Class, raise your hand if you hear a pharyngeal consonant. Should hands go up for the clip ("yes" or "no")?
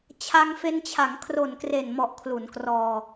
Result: no